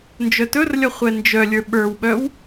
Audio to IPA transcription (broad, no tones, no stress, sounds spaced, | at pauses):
n d͡ʒ œ t ɵ r lʲ ʌ χʷ ɛ n d͡ʒ œ lʲ ə˞ ɓ ə˞ w ɓ œ w